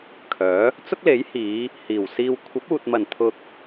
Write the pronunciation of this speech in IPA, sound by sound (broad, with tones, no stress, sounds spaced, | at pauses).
kʰ œː˨˥ | t͡s ʊ˥ k̚ l e˨˥ j h iː˨˧ | h iː˨˩ w s iː˧ w kʷʰ ɐ˨˥ p̚ uː˨ t̚ m ɐ˨˩ n t̪ʰ ʊ˧ k̚